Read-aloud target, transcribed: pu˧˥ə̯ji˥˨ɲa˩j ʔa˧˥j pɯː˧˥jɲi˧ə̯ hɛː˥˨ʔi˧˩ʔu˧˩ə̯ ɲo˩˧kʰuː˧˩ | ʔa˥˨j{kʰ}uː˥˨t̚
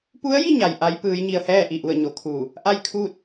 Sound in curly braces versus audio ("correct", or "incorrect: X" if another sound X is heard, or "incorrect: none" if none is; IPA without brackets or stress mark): correct